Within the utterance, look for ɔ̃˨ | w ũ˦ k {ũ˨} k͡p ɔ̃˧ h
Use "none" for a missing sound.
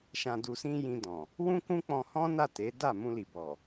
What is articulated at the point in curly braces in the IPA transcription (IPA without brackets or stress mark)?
ũ˦